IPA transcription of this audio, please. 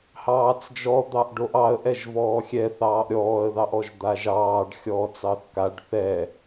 h ɑː t͡s d͡ʒ ɔ d̪ ɑ ʔ ɖ o ʔ ɑ ə̯ ʔ ɛ ʒ v ɔː xʲ ɛ θ ɑː ʔ ɾʲ ɔː ə̯ ð ɑ ʔ ɔ ʒ d̪ a ʒ ɑː ɖ xʲ ɔː t͡s ɑ θ k a ɖ θ ɛ

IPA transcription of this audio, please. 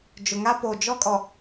d͡ʒ ʊ˨ ŋ a˦ p o˨ d͡ʒ ɔ˦ kʼ ɔ˨

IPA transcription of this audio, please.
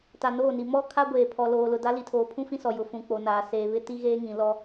t a˨ n oː˦˨ n i˨ m ɔ˦ kʰ a˦ ɡʷ eː˨ pʰ ɔ˨ l oː˨ l ʊ˨ d a˦ l i˨ tʰ oː˨ pʰ ũ˦ f ĩ˦ s ɔ˨ j ʊ˨ f ũ˨ k͡p o˨ n aː˨ s eː˨ β ɪ˦ t i˦ ɣ eː˦ ŋ ĩ˨ l ɔ˦

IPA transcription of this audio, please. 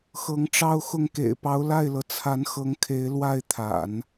x ɤ˧˥ ŋ ʈ͡ʂ ɑ˥ ʊ̯ x ʊ˥˩ ŋ k ḛ˨˩ ɪ̯ p ɑ˧˥ ʊ̯ l a˥˩ ɪ̯ l ɤ˩ t͡sʰ a˧˥ n x ɤ˧˥ ŋ kʰ e˧˥ ɪ̯ l w a˥˩ ɪ̯ t̪ʰ a̰˨˩˦ n

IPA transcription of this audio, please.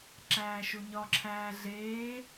ǁ æː ʃ u ɲ ɒ ǁʰ æː ɮ eː

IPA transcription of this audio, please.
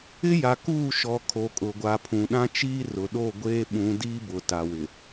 ɪ˦ j a˨ k uː˦˨ ʃ ɔ˨ kʰ o˨ kʼ ʊ˨ ɡʷ a˨ pʰ ũ˨ ɗ ã˦ t͡ʃ iː˦ r ʊ˨ ɗ o˦˨ ɡʷ eː˦ ɓ ũ˨˦ d iː˦ b ʊ˨ t a˨ w ɪ˨

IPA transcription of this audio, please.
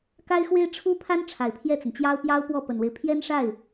k a˥ ɪ̯ x w e˥ ɪ̯ ʈ͡ʂʰ u˥ pʰ a˥ n ʈ͡ʂʰ a˨˩ ɪ̯ pʰ j ɛ˥˩ t͡s ə˩ n t͡ɕ j ɑ˥ ʊ̯ p j ɑ˥ ʊ̯ p w ɔ˥˩ p ə˨˩ n w e˦ ɪ̯ pʰ j ɛ˥ n ʂ a˥˩ ɪ̯

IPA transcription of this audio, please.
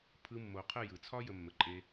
pʰ ɯ˦ mː o˧ qʰ ə˦˨ j ɯ˨ t͡sʰ ɒ˦ j ə˧ mː ə˧ ǃʼ e˦

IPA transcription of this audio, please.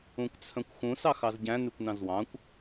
ũ kʷ t͡sʰ œ̃ kʷ x ũ s ɑ x ɑ z ɟ æ̃ n ʉ kʷ n ɑ̃ z w ɑ̃ kʷ

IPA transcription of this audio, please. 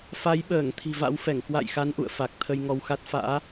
f a˨˦ j ɓ əː˧˩ ŋ t̪ʰ i̤˨˩ v a̰˧˥ w f ɛ˧˩ ŋ k w a̰˧˨ j x a˨˦ n ʔ ṵ˧˨ ə̯ f a˨˩ k̚ t̪ʰ ə˧ j ŋ ɔ˧ w x a˦˥ t̚ f a̰ː˧˥

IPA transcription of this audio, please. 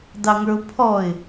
d ɑ ŋ ə˞ ʊ̯ pʰ ɔ ɪ̯

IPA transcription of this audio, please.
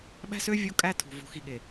ɓ æ̤˦ s ø˦ vʲ o˦ kʼ æ˦ tʰ ṳ˨ v o̤˨ x i˨ ɠ e˨

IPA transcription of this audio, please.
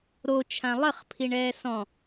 ɾ o t͡ʃʰ ã lˠ ə χ pʰ i ɳ ɛː s ɔ̃

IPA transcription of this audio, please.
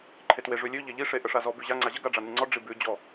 ǃʰ e t w e ʐ ʉ lʲ ʉ ʎ e ʎ i ʂ e ʔ ə ʂ a z ɔ b ʉ ʑ a ŋ͡ǀ a ʑ ə ɡ a ɖ͡ʐ a n ʉ ŋ͡ǀ ɔ ɖ͡ʐ i b ʉ d͡ʑ ɔ

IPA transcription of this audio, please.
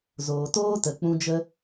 z oː˨ t oː˦ t ə˨ k͡p ũ˧ d͡ʒ ə˦

